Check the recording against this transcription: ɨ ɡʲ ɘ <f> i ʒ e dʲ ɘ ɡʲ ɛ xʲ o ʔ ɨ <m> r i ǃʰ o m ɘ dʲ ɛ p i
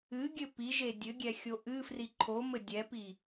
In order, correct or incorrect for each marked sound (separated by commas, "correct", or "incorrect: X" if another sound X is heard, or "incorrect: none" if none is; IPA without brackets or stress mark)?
incorrect: p, incorrect: f